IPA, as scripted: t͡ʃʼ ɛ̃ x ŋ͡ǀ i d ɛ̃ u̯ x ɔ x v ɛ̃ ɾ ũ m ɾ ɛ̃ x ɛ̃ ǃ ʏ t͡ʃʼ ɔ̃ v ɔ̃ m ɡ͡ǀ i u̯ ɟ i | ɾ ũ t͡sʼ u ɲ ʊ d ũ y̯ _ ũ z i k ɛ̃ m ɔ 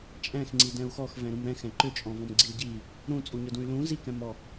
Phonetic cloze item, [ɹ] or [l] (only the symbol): l